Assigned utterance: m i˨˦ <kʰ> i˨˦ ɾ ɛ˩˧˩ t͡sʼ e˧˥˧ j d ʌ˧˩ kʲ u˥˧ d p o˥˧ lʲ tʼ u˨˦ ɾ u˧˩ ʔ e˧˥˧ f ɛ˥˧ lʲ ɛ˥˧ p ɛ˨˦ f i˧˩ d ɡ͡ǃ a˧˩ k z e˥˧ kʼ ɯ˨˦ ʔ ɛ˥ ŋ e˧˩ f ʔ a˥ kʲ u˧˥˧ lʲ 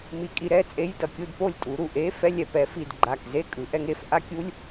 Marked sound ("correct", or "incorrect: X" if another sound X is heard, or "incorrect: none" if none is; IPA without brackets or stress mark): incorrect: kʼ